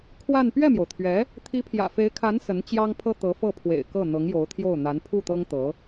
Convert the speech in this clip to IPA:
kʰ w a˥˧ n p ɥ ɛ˥˩ m j o˩ ʊ̯ t̪ʰ ɥ ɛ˧˥ | t̪ʰ i˧˥ pʰ j ä̰˨˩ f e˧˥ ɪ̯ kʰ a˧˥ n s ə˧˥ n t͡ɕ j ɑ˥ ŋ pʰ ɤ˥ t̪ ɤ˧˥ f ɤ˥˩ pʰ w ḛ˨˩ ɪ̯ k ɤ˥˩ n̪ ɤ˧˥ ŋ j o˧˥ ʊ̯ t̪ʰ j o˥˩ ʊ̯ n̪ a˧˥ n pʰ u˥˩ t̪ ɤ˥ ŋ t̪ ɤ˧˥

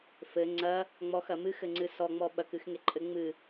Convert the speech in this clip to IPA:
f ɘ ŋ͡ǀ ɐ | ŋ͡m ɔ x ɐ m ɨ x ɘ ŋ͡ǀ ɨ s ɔ ŋ͡m ɔ ɓ ɐ k ɨ x ŋ e ǃʼ ɘ ŋ͡m ɨ

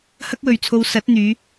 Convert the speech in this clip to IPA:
h ɐ˥ k̚ w ɵ˨ ɥ t͡sʰ o˧ w s ɐ˨˥ t̚ n̪ yː˨˧

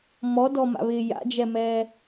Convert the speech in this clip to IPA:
m ɔ d ɔ m a̰ β ɪː j a̰ d͡ʒ ɛ m ɛː

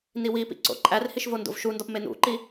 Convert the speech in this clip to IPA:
n i w i p ḭ ǀ o̰ ǃʼ æ r h i ʃ v o n d o̰ v ʃ u n d ɒ p m e n ṵ ǃ i

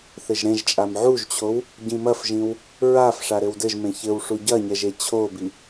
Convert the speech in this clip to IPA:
θ ɘ ʒ ɾ ẽ ʒ t͡ʃʼ a m ʕ u ʒ t͡ɕʰ o w | ɟ ĩ m ɐ f ʒ ĩ w | ɹ a f ʂ a ɾ ɘ w d ɘ ʒ m ẽ ç ɘ w ʂ u ɟ ɐ ɲ ɛ ʒ e t͡ɕʰ o b i

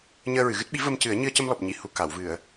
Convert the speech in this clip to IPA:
ɲ əː˧ ɹ ɨ˨˩˨ ɣ ɨ˦˥ t̚ ɓ i˧˥ v ə˧ m c ɨ˨˩˦ ə̯ ɲ ɨ˧ ə̯ c ə˧ m l ɔ˨˩ p̚ ɲ i˨˩˨ h u˨˩ k a˨˩˨ w v ɨ˨˩˨ ə̯

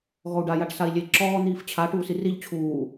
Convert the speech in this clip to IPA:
ɣ ɔ u̯ ɖ a j a ʈ s a i̯ lʲ e ǁ ɔː n̪ iː f t͡ɕʰ a ʈ uː s i r i ʎ t͡ɕʰ uː

